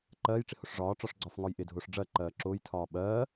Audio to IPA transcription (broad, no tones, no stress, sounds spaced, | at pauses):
ǃ ɜː j ʈ͡ʂ ɪ h ʊ ʂ ʐ ɒː ʈ͡ʂ ɒ ʂ ɡ͡ǀ ɒ f ŋ ɒ j ʔ ɪ dʱ ʊː ʂ ɖ͡ʐ ɜ ǃ ɜː ǁ ʊː j tʰ ɒː ɓ ɜː